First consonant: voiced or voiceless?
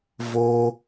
voiced